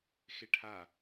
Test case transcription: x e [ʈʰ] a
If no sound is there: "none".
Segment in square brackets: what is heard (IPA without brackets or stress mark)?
ʈʰ